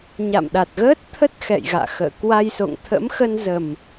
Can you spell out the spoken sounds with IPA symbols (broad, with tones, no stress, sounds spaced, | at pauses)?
ɲ a̰˧˨ m ɗ a˨˩ t̚ ɣ əː˦˥ t̚ t̪ʰ ə˦˥ t̚ x ɛ̰˧˨ j ɣ a̰ː˧˨ x ə̰ː˧˨ k w a˧ j s o̰˧˨ ŋ t̪ʰ ə̰˧˥ m x ə˧ n z ə˨˩ m